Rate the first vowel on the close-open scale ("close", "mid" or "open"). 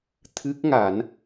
close